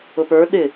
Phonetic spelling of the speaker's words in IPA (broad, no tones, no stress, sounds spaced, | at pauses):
ʊ p ə˞ ɗ ɪ